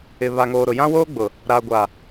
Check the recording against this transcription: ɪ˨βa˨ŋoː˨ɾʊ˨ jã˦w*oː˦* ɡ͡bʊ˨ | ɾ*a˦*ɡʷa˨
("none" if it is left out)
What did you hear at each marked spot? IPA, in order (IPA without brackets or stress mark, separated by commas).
oː˦, a˨